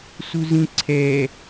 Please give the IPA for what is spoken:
s u z ĩ ǀʰ ɛ

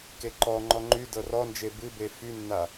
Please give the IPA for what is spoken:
k e ǃ ɔ ŋ͡ǃ ɔ ŋ͡ǃ y d ɤ r ɔ n d͡ʒ e b ɨ b e f y nː a

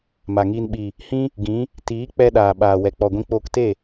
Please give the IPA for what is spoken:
m a˨ ŋ iː˧ n ɓ i˨ | h ĩ˦ | ɡ ĩ˨˦ | t iː˨˦ k͡p ɛ˧ ɗ aː˨ ɓ aː˨ w ɛ˨ k͡p ɔ˨ ɡʷ ĩ˧ k͡p oː˧ k t e˦˨

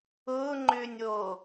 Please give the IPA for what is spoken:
ʊː ŋ͡ǃ ʏː nʲ oː

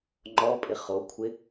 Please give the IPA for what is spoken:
ŋ͡ǃ ɔ pʼ ɪ χ o kʷʰ ɪ

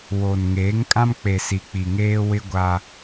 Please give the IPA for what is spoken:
w o˨ n ŋ eː˨˦ ŋ kʼ ã˦ m k͡p e˨ s i˨ k͡p i˨ ŋ eː˦ w ɪ˦ ɡʷ a˦

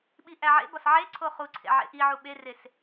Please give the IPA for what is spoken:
ɓ i ʔ æ ʕ ḛ b ɒ s ʕ e ǀʰ o χ u ǀʰ ḛ ʕ ḛ ʔ i ʕ u ɓ e r e s

